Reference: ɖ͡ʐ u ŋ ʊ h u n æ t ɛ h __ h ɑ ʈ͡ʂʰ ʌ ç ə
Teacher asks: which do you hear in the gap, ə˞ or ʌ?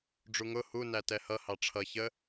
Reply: ʌ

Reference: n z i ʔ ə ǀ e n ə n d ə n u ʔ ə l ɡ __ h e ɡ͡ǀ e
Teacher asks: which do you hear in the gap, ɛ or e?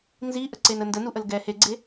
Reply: ɛ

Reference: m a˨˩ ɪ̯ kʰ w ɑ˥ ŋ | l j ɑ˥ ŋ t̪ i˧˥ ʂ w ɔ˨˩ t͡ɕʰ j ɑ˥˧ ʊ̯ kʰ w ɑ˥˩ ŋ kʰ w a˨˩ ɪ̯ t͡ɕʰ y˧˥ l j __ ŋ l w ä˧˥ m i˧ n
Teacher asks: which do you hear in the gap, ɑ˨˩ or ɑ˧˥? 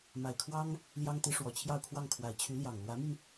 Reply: ɑ˨˩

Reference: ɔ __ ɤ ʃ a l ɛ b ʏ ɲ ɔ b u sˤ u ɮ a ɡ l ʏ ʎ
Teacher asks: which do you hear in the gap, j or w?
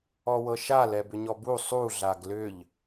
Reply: w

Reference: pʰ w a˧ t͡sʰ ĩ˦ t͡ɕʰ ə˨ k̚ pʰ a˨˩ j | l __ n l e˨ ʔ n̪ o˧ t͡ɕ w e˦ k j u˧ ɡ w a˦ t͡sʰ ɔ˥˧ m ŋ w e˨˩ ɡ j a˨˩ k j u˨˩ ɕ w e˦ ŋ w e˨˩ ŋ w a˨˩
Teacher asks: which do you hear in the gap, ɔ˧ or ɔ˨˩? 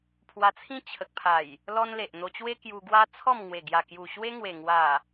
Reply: ɔ˧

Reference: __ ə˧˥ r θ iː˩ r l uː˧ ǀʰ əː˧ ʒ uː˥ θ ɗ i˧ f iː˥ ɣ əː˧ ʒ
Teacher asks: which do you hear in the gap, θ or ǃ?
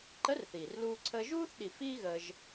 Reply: ǃ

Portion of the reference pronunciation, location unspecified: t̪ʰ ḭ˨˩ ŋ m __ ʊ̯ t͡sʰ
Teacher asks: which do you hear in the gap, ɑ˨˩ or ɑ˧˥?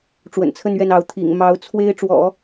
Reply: ɑ˧˥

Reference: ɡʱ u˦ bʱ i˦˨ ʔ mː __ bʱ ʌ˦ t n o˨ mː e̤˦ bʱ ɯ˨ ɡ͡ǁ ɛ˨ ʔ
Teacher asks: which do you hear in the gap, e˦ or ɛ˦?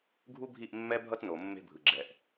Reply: ɛ˦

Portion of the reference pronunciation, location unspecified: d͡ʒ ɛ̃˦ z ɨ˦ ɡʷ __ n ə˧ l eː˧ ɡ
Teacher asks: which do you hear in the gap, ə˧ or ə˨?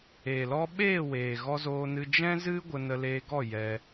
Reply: ə˧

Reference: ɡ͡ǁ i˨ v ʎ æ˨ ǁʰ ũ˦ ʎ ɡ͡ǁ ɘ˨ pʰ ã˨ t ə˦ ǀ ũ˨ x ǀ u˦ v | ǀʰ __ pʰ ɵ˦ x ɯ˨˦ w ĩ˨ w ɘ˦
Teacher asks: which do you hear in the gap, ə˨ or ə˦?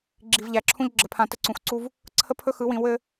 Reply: ə˦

